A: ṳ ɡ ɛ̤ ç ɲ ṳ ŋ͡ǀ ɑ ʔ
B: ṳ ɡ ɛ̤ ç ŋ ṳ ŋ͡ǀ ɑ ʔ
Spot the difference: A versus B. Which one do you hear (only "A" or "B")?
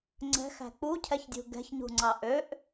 A